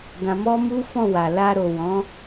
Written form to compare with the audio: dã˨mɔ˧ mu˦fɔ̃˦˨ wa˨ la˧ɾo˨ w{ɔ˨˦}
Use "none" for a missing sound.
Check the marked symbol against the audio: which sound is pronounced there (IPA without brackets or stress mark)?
ɔ̃˨˦